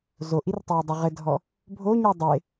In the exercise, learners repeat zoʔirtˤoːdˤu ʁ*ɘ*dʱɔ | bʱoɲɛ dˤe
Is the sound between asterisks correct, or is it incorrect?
correct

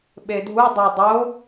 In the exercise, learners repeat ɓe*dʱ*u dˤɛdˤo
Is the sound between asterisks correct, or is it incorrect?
correct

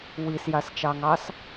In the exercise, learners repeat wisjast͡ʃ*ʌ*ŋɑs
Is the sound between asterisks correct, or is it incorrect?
incorrect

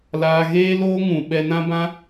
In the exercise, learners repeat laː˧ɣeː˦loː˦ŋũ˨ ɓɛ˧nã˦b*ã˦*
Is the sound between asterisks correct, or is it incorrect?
correct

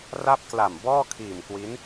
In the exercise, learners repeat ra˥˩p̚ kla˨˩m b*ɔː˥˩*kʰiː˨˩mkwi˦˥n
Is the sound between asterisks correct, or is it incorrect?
correct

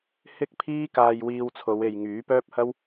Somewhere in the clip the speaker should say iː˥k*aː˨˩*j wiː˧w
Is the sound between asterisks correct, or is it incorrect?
incorrect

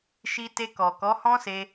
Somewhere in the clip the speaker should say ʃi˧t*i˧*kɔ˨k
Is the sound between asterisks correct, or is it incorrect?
incorrect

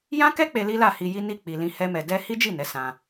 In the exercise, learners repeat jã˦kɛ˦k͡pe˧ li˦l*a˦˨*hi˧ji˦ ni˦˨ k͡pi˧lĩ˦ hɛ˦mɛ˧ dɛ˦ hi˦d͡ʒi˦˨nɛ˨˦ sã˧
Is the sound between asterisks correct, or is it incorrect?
correct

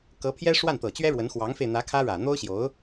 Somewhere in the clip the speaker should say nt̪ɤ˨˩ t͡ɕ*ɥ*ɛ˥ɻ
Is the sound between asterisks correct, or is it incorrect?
correct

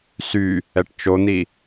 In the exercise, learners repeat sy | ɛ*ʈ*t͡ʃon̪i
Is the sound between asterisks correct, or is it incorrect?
correct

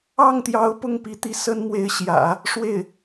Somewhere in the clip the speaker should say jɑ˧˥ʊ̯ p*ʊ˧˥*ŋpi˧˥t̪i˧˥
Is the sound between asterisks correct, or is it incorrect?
incorrect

